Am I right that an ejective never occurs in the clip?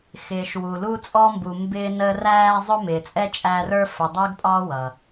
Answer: no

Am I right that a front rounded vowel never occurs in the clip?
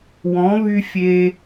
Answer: no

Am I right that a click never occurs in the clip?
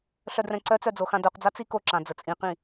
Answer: no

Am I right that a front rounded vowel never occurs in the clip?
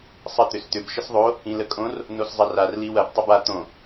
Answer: no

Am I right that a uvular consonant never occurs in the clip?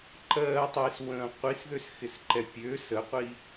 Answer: no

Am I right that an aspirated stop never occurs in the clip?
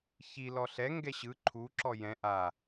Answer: no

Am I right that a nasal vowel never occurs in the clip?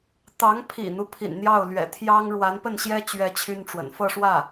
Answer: yes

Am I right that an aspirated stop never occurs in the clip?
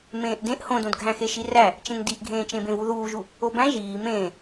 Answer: yes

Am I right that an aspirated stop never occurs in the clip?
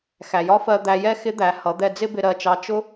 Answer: yes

